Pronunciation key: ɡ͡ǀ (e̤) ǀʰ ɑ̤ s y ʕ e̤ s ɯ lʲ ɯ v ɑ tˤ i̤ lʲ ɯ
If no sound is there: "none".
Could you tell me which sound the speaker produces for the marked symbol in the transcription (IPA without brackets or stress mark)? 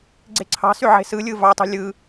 e̤